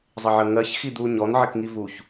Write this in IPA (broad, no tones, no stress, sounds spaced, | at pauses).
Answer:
zˤ ɪ ʕ ə ŋ ɜ ç x i d̪ u ɲ ɔ n ʕ ɪ k ŋ i v u ç